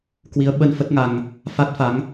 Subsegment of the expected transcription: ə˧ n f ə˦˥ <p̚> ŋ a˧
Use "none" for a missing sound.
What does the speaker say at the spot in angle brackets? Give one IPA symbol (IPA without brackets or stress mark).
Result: t̚